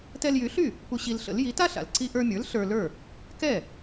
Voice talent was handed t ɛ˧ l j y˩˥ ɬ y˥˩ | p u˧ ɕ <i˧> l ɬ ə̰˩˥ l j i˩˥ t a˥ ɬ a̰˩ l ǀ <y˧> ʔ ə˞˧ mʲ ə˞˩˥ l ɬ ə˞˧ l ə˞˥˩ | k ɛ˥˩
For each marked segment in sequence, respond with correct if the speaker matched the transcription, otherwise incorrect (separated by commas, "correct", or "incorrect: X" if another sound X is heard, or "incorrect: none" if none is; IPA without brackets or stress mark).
correct, incorrect: i˧